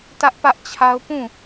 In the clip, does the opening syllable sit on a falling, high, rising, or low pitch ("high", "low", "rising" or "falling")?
high